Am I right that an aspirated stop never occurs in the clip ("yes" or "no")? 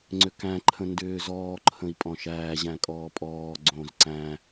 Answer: no